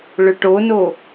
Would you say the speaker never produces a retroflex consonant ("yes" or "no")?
no